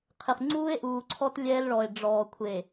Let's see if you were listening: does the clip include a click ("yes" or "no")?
yes